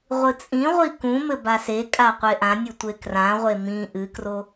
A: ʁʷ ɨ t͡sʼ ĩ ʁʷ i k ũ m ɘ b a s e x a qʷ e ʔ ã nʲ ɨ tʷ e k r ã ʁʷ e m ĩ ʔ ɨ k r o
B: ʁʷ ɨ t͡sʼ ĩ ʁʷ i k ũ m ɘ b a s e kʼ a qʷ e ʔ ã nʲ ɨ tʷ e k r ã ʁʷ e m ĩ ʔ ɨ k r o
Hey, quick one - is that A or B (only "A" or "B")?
B